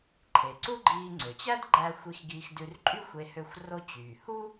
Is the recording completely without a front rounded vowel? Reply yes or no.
no